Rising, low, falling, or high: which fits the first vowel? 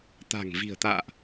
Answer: low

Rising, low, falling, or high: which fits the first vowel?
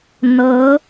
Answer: rising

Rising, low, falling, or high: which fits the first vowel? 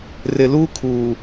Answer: low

